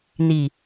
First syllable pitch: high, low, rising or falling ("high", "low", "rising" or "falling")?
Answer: low